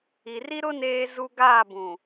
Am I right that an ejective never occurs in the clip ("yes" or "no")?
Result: yes